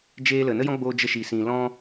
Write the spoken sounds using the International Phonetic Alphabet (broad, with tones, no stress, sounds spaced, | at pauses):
d͡ʒ eː˦ l ə˨ n ə˦ j ɔ̃˦ ɡ͡b oː˧ d͡ʒ ə˦ ʃ i˨ s ĩ˨ l ɔ̃˦